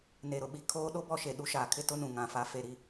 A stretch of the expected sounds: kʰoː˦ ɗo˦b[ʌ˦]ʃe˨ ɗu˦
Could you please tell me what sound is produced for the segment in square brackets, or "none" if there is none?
ɔ˦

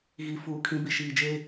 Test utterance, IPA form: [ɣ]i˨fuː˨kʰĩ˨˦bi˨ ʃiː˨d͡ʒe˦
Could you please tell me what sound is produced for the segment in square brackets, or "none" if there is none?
ɣ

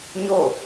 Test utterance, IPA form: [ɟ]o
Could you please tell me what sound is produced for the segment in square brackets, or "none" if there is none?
ɲ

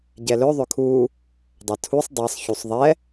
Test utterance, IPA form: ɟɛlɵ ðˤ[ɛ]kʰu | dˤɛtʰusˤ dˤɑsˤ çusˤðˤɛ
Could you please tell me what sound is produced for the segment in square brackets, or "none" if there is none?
ʏ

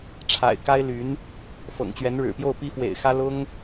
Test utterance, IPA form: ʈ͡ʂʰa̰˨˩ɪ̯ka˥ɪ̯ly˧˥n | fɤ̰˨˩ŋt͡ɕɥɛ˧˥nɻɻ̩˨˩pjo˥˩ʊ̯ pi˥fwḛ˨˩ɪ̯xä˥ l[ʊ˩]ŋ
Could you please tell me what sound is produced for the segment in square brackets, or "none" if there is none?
ʊ˥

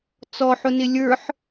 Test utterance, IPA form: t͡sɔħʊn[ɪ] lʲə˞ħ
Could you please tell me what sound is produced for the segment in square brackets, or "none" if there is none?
ɪ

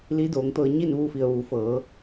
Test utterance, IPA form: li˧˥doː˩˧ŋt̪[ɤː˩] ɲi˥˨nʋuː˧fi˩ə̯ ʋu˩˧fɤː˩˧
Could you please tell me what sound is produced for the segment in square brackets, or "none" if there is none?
ɤː˧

